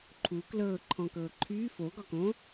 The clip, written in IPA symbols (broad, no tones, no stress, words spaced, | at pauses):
ǃʰu klɤːǃʰɔ̃kɤː ǃʰyː foɡɒkõ